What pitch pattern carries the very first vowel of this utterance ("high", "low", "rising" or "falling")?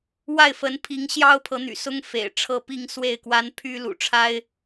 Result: falling